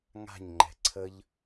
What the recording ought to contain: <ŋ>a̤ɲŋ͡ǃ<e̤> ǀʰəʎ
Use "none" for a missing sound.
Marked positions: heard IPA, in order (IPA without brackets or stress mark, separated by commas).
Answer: ŋ, ɛ̤